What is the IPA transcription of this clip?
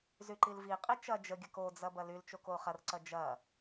zyǃilviqʼi t͡ʃɐ d͡ʒəɡʲɐk od͡zɐ bɐlylt͡ʃok oχɐrǀɐ d͡ʒɐ

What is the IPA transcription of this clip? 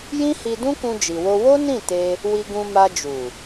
jĩ˦hi˧dũ˦ kũ˧d͡ʒi˨wo˧ wo˦nĩ˦˨ te˧ | wi˧ɡũ˧ma˧ d͡ʒu˨

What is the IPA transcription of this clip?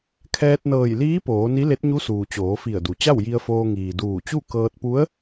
kʰɛː˧t̚nɤː˧˩jliː˧˥ poː˩˧ ni˧˥le˧˥t̚ɲu˧˥suː˩ t͡ɕoː˩˧fi˧˩ə̯du˩ t͡ɕa˥˨wji˧ə̯foː˧ ŋiː˩duː˧˩t͡ɕu˥˨ kɤː˧t̚pu˧˥ə̯

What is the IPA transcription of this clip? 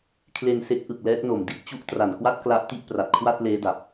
kʰle˧nse˦˥k̚ ʔɯ˨˩k̚lɛː˦˥k̚no˨˩m di˦˥t̚ t͡ɕu˥˩ʔ tra˨˩nkwa˥˩t̚ kla˦˥ʔ ti˥˩ʔpra˨˩t̚kʰwa˥˩t̚ leː˦˥da˨˩p̚

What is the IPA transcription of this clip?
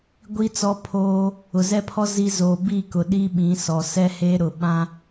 ɡʷi˦ t͡sɔ˦pʰoː˦ | ʊ˨zɛ˦pʰɔ˦ zi˦ zoː˨bi˦˨ kʊ˨ɗi˦ ɓĩ˨˦sɔ˨ sɛ˦heː˦ɾʊ˨ɓã˦

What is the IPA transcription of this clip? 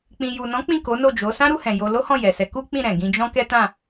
k͡pĩ˨ju˨nɔ̃˨˦ k͡pĩ˦˨ko˨˦ no˦˨d͡ʒo˨˦ sã˦ɾu˧hɛ̃˨ jo˧lo˦hɔ̃˦˨ jɛ˨sɛ˨˦ ku˦k͡pĩ˦˨ ɾɛ̃˨ɡĩ˧d͡ʒɔ̃˦ kɛ˦tã˦˨

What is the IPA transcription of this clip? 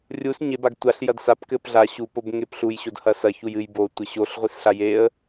rʲus ɲebaɡ tʷaɬ jɐdsap kɘpɮa ɕupob ŋepɬuj ɕodhɐsɐ çujɨj botʷɘ ɕoɬʁʷisɬa jeə̯

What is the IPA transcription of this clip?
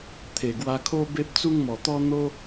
t̪ʰe˨˩ɡwa˧kʰo˦ be˦p̚t͡su˦ŋmɔ˨˩t̪ɔ˦ n̪o˦

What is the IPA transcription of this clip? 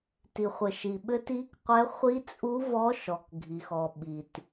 ti˨χʷɘ˨ʃi˨ ɓɘ˦˥ti˦˥kqʷɛ˦˥ χʷi˦˥t͡sʼu˦˥ vɔ˦˥ʃɔ˨kɡʱi˨x ɔ˨ɓi˨t

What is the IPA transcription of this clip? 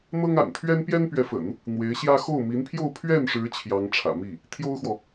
n̪ɤ˥ŋa̰˨˩n t̪ʰɥɛ˥npjɛ˥npɥɛ˧˥fə̰˨˩˦n | n̪we˧˥ɪ̯ɕjä˥ xo˥˩ʊ̯mi˧˥npʰjo˥˧ʊ̯ pʰɥɛ˥˩nʂɻ̩˧˥ t͡ɕʰjɑ˧˥ŋʈ͡ʂʰä̰˨˩ mi˥˩ | t̪ʰjo˥ʊ̯xwɔ˨

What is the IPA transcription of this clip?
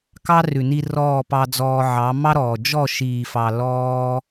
kɑ˦rʉ˨ni˧ rɔː˦˨pɑ˧d͡zɔː˧ʕɑ˨˦ mɑ˦ɾɔː˨ d͡ʒɔ˦˨ʃiː˨fɑ˨ lɔː˦

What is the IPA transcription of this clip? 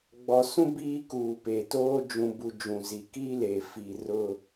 ɡ͡bɔ˨sũ˦ biː˦kuː˨pe˨toː˦ d͡ʒũ˨bu˨ d͡ʒũ˨zi˨kiː˦leː˨ fi˨ rʊ˦

